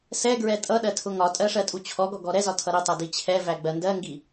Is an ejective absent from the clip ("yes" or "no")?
no